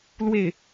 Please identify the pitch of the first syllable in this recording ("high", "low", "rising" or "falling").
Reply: falling